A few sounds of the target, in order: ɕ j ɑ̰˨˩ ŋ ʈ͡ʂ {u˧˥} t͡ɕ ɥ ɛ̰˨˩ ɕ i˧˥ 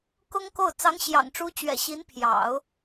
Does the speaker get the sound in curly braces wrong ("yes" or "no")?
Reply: no